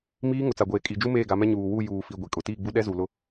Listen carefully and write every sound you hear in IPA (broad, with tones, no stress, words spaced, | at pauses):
miː˦ ŋʊ˨t͡sa˨ɡʷeː˨ kʼi˨d͡ʒu˦ meː˦˨ɡa˨˦mɛ˦ ɲuː˨wu˦˨ juː˨fi˨ ɡʷi˨kʼʊ˨ tiː˦˨ɡ͡bu˦ ɗɛ˦zu˨ lʊ˦